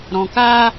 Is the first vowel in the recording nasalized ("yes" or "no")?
yes